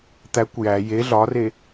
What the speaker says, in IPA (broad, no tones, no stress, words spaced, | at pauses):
t̪ækʷ jæ je ɮɒre